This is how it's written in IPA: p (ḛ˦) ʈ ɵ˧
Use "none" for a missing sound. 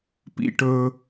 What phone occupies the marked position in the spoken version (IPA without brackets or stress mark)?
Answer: ḭ˦